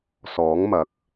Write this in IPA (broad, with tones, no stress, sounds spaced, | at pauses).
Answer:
s ɔː˨˥ ŋ m ɐ˨˥ k̚